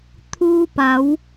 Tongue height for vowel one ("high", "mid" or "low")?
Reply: high